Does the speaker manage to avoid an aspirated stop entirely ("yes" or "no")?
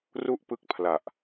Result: no